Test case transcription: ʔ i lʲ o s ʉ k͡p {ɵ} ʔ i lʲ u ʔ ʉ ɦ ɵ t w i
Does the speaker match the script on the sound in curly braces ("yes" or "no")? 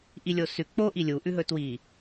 no